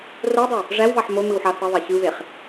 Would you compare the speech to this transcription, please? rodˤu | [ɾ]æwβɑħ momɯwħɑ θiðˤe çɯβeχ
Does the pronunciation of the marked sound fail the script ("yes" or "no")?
yes